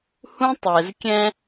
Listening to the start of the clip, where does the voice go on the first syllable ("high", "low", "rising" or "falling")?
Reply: high